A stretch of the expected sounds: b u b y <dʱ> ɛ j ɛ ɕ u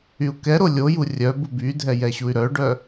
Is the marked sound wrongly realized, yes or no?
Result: no